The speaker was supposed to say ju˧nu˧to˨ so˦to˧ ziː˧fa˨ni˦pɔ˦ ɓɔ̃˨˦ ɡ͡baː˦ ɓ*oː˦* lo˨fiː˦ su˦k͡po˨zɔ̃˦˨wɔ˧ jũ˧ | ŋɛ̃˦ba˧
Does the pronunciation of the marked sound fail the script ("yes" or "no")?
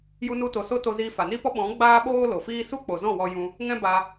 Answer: no